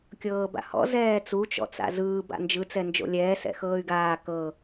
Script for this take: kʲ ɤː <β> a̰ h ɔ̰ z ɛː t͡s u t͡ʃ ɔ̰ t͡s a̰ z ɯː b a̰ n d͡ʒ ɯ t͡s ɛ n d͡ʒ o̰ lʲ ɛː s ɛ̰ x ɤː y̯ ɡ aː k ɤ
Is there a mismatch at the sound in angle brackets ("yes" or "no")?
yes